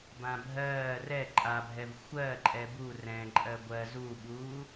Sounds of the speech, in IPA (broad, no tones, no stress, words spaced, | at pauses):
bãbʱɜː rɛ ǃʼabʱɛv xʷɜ ǃʼɛbu rɛ̃ ǃʼɜɡʷɜ zuɓuː